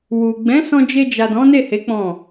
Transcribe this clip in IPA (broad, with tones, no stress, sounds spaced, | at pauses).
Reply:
w u˨ ɡ͡b ɛ̃˨˦ s ɔ̃˧ d͡ʒ e˧ d͡ʒ a˨ d ɔ̃˨˦ n e˦˨ h e˨˦ k͡p ɔ̃˦˨